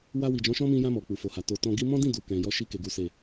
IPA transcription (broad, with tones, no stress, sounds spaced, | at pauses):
w a˧ w i˨ d͡ʒ ɔ̃˨˦ ʃ ɔ̃˦ m ĩ˧ j ã˧ m ɔ˨ k͡p u˨ f o˨ h a˨ t o˨ t ɔ̃˧ ɡ i˦ m ɔ̃˦ d ĩ˦˨ d u˨ k ɛ̃˨ j ɔ˧ ʃ i˧ k e˨ ɡ u˨ s e˨